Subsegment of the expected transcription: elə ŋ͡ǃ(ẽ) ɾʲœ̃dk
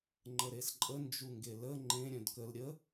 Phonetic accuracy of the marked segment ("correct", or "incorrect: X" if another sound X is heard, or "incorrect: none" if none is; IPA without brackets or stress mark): correct